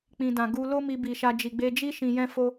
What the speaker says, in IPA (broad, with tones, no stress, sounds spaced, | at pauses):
k͡p ĩ˨ d ã˨ ɡ u˧ l o˦ m i˧ b i˨ ʃ a˧ d͡ʒ i˨ ɡ͡b e˧ d͡ʒ i˦ ʃ ĩ˧ j ɛ̃˦ f o˦